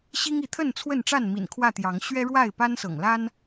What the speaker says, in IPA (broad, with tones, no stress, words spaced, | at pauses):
ɕi˦ŋi˨˦t̪ʰə˥˨n t͡sʰwə˥˨nʈ͡ʂa˥˨n mḭ˨˩nkʰwä˥˨ t̪jɑ˨˦ŋ ɕɥɛ˦ɻwa˥˨ɪ̯ pa˦nsɤ̰˨˩ŋla˦n